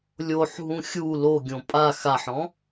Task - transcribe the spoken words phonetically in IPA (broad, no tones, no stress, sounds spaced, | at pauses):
lʲ o ħ ɦ ũ xʲ u l o ɡʲ õ pʼ a x a ħ ɔ̃